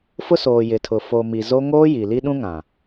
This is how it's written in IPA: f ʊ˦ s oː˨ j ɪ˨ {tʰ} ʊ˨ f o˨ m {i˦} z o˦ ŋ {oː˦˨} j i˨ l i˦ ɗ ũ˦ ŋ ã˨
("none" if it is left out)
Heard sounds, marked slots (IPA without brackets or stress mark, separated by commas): tʰ, i˨, oː˦